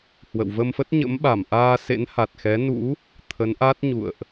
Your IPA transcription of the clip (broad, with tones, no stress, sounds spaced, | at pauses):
h w ə̰˧˨ w v ə˧ m f ə˦˥ t̚ ɲ ə̰˧˥ m ɓ a˧˩ m ʔ aː˧ s ḛ˧˥ n h a˨˩ t̚ x ɛ˨˦ n ṵ˧˥ | t̪ʰ ə˨˦ n ʔ a˦˥ t̚ ɲ ṵ˧˨ ə̯ ʔ